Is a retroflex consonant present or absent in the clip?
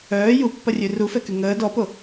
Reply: absent